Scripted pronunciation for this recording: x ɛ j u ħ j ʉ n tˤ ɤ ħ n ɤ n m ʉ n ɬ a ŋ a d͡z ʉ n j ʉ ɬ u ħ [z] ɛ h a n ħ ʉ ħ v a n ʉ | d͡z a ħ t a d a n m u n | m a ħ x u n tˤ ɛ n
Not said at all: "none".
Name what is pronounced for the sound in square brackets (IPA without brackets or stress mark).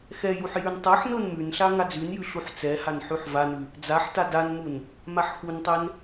t͡s